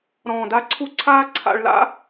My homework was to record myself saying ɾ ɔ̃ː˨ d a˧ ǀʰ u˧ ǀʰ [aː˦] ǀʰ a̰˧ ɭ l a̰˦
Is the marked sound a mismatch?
no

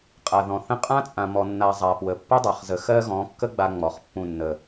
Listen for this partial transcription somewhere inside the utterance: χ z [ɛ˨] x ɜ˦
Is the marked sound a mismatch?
yes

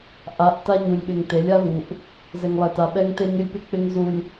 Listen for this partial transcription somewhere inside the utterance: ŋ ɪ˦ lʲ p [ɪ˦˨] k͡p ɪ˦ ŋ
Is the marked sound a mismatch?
yes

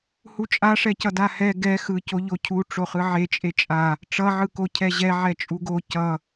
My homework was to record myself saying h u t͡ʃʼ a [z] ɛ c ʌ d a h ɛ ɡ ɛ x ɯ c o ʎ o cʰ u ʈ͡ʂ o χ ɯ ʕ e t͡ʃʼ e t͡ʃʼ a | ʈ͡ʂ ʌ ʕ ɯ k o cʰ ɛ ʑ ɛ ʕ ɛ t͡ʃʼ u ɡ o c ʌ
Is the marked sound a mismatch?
yes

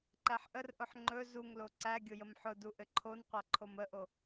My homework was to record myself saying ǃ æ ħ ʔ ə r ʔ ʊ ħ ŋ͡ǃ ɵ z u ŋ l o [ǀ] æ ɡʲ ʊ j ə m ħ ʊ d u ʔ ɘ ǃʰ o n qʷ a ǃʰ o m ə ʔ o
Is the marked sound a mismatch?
no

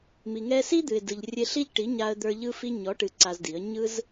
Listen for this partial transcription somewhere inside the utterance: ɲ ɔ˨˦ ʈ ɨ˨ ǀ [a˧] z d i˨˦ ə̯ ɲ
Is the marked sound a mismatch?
no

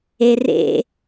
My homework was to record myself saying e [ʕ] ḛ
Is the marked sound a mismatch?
yes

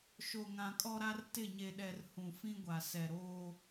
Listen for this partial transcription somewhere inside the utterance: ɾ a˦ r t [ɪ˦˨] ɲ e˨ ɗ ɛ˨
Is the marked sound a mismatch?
no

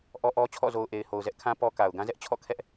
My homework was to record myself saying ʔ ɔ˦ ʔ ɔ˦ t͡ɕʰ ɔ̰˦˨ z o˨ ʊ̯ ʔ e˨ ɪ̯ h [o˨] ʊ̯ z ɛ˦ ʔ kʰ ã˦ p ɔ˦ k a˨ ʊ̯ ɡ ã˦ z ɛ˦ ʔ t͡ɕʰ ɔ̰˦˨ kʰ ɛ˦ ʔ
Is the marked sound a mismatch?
no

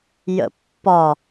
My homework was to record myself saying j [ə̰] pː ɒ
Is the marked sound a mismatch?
no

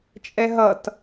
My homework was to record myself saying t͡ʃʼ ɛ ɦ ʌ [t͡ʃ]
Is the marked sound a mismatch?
yes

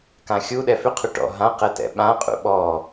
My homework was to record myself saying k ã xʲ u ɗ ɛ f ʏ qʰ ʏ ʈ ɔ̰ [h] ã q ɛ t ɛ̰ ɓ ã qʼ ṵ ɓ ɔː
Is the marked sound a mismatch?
yes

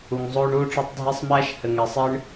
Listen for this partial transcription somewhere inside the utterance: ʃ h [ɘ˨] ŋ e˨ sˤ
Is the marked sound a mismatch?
no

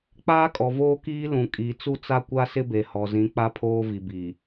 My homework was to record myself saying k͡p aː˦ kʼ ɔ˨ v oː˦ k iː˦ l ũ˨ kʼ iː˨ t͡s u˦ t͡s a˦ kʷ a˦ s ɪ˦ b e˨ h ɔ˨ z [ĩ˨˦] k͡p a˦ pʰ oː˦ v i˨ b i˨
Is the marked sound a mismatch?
no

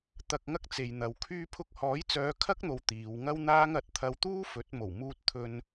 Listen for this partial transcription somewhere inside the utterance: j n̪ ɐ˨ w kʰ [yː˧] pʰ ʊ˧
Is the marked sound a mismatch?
no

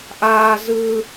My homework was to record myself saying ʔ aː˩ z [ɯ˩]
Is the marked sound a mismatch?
no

